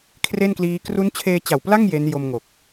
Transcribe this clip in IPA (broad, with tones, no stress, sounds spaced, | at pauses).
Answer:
kʰ r e˥˩ n k l iː˦˥ k r u˦˥ n t͡ɕʰ eː˧ t͡ɕ a˨˩ w p l a˥˩ ŋ j e˦˥ n j o˧ m ŋ o˨˩ k̚